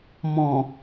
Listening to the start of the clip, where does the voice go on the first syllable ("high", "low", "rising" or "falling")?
low